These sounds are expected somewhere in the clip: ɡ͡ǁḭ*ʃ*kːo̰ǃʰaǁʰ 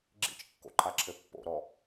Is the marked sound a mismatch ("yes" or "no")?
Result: yes